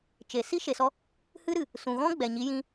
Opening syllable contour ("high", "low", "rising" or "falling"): low